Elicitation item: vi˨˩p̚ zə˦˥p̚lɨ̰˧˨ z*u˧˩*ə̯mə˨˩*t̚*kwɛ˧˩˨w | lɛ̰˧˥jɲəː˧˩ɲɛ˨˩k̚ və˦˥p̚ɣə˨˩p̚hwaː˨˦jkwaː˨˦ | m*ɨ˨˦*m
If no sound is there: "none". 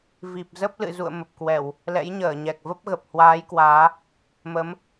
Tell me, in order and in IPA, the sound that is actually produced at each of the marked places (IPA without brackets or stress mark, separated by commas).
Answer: ṵ˧˨, p̚, ə˨˦